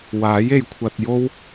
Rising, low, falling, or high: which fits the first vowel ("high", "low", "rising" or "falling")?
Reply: rising